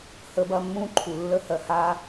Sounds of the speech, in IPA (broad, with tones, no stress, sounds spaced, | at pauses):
h ə˦ b ɐ˦ mː ũ˦ ǃʰ u˨ lː ə˦ h ɜ˨ h a˦